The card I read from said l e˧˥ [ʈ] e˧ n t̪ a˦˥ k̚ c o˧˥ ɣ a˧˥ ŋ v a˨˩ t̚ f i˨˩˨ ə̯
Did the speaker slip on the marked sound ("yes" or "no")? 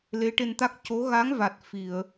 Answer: no